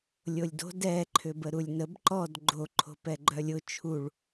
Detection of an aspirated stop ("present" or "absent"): present